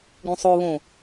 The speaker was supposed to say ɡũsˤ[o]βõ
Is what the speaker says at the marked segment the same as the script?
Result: yes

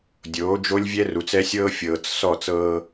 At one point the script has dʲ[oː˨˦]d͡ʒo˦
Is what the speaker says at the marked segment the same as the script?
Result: yes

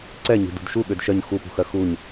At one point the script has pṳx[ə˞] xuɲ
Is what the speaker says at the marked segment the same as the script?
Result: no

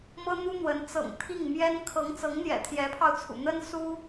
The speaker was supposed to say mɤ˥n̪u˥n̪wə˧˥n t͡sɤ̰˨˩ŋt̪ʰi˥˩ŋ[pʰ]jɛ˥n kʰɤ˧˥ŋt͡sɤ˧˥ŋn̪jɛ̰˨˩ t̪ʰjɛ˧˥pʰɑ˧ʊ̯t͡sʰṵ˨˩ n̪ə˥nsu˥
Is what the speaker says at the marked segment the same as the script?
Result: no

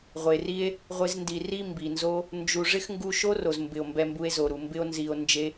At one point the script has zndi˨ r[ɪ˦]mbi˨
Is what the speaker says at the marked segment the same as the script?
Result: no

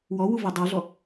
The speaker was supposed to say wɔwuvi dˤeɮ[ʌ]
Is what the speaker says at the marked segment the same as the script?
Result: no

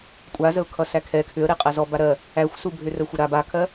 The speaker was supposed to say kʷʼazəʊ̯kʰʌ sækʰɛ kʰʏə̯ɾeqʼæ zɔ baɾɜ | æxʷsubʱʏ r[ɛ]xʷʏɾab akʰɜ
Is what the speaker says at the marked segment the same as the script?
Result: no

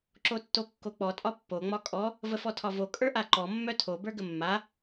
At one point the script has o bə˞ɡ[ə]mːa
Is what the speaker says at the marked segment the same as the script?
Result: yes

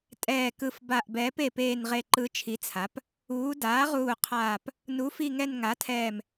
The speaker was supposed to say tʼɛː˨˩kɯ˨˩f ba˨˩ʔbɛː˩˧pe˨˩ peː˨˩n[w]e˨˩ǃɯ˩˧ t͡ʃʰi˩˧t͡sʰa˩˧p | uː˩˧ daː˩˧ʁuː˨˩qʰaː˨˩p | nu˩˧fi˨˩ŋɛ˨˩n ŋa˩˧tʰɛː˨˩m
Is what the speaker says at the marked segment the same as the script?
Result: no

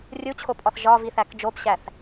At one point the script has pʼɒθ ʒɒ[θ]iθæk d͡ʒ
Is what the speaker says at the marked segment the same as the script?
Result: no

